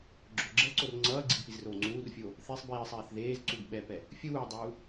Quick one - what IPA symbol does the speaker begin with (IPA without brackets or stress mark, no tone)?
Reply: ɡ͡ǁ